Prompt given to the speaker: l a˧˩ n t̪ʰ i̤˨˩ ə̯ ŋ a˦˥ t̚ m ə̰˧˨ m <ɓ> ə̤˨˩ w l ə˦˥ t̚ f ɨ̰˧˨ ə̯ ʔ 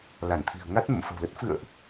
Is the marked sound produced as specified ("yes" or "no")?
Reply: no